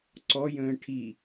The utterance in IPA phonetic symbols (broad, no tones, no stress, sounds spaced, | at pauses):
ǀ ɔ j ə̃ː ʈʰ i